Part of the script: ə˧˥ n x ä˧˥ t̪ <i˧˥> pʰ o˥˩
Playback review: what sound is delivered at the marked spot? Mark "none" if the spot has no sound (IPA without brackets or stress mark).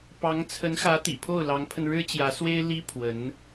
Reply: ḭ˨˩